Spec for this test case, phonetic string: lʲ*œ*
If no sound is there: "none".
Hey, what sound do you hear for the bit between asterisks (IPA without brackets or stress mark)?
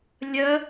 œ